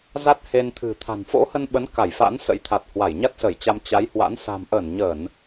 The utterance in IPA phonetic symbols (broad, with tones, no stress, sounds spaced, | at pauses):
z a˦˥ t̚ h e˧ n t̪ʰ ɨ̤˨˩ t̪ʰ a̤˨˩ n f o̰˧˥ h ə˧ n ɓ ə˨˦ n k a˧˩ j f a̰˧˥ n s ə̰˧˥ j t̪ʰ a˨˩ t̚ h w a˧˩ j ɲ a˦˥ t̚ s ə˧˩ j t͡ɕ a˧ m t͡ɕ a˨˦ j h w a̰˧˥ n s a̤˨˩ m ʔ əː˧˩ n ɲ əː˧˩˨ n